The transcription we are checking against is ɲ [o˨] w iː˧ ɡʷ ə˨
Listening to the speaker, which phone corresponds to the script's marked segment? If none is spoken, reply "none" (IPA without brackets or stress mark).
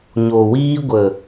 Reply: o˨